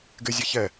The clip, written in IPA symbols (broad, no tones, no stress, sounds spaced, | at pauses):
ɡ ɪ zʲ ɛ ç ɛ